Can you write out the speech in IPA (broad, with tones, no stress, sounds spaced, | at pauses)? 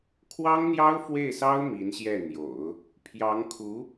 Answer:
kʰ w ɑ˥ ŋ n̪ j ɑ˥ ʊ̯ f w e˥˩ ɪ̯ s ɑ˥ ʊ̯ m i˧˥ n ɕ j ɛ˥˩ n̪ j o̰˨˩˦ ʊ̯ | pʰ j ɑ˧˥ ŋ kʰ u˧˥